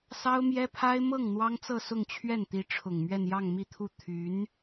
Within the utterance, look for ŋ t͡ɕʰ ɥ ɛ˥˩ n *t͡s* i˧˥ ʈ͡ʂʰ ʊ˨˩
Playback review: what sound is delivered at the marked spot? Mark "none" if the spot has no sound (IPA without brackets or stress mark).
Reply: t̪